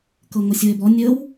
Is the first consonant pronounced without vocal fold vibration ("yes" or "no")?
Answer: yes